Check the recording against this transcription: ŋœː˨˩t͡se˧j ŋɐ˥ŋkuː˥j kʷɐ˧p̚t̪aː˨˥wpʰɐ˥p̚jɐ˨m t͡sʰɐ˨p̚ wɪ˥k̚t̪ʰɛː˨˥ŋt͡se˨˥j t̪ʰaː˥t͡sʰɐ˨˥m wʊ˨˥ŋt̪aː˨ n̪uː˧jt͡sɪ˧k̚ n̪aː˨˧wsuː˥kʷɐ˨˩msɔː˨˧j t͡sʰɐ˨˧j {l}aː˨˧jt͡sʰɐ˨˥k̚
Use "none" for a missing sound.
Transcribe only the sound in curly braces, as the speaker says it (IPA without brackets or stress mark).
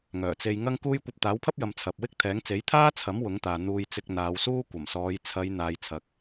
n̪